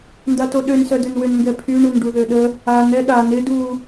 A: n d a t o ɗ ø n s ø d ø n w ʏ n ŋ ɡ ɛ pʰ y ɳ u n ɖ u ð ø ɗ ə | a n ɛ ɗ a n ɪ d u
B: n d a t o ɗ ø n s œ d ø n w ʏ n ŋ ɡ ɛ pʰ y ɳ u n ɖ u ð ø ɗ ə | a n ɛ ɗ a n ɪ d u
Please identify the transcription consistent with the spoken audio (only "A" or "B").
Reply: B